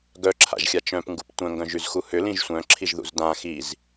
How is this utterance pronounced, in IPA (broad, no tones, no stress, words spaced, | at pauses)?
ɡœǁʰa̰ʒxʲa t͡ʃœ̃pŋɡup tʷœ̃ŋɡœ̃ʒyzxu hʏlĩʒ sʷœ̃ǁʰiʒðṵz dã xiz